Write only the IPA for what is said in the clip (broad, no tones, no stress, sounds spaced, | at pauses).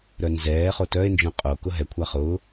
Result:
ɾ œ n z ɛː χ o t œ e̯ n d͡ʒ œ̃ qʼ o k ʊ ɦ ɛ kʷʰ a χ ʊː